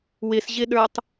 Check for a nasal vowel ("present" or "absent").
absent